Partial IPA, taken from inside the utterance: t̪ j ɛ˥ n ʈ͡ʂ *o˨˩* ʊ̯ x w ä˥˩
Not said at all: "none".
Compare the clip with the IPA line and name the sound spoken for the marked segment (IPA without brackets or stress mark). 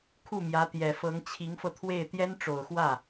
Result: o˨˩